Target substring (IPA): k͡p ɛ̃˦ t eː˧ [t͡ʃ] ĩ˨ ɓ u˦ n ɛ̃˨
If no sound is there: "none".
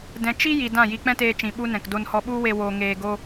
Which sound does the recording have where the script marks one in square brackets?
t͡ʃ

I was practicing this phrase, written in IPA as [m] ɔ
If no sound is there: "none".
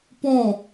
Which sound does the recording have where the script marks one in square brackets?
p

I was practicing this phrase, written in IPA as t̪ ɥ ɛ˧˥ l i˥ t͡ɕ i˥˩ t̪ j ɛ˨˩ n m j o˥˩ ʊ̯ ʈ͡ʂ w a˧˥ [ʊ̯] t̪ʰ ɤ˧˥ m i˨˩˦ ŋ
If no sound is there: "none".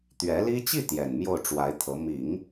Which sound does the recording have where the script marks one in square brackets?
ɪ̯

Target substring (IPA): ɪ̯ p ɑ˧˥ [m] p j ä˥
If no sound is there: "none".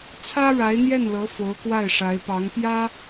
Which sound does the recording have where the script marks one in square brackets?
ŋ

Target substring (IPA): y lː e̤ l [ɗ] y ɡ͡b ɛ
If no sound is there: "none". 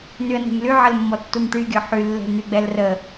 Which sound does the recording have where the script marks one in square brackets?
n̪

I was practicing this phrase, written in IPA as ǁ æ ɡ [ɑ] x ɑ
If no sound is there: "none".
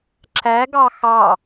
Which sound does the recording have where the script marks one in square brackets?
ɑ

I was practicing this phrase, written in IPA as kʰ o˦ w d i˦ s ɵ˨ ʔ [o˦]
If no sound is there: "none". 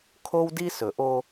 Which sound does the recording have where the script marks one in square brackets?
o˦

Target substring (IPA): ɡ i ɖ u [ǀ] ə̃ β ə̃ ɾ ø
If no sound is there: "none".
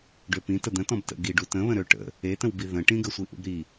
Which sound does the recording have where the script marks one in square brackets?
t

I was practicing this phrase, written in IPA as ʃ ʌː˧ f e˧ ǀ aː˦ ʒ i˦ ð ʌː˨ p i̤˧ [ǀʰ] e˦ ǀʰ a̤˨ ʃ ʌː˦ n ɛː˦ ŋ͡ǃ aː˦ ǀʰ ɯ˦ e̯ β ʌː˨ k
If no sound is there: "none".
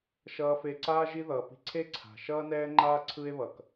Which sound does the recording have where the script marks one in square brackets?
ǀʰ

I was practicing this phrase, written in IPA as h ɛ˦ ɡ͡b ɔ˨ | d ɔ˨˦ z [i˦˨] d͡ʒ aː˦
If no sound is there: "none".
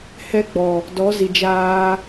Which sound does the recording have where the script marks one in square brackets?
i˨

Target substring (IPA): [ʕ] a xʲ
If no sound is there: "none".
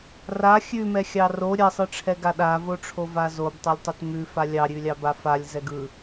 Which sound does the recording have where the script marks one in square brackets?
r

